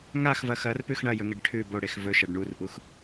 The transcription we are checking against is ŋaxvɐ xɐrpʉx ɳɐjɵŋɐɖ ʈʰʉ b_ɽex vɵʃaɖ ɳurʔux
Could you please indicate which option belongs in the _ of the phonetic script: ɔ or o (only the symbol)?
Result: o